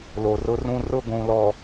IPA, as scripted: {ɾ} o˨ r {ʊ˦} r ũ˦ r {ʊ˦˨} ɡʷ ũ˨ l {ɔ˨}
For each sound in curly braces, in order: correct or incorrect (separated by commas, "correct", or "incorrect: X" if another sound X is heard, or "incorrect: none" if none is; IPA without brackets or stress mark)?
incorrect: l, correct, correct, correct